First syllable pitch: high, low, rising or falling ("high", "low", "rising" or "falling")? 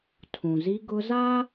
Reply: low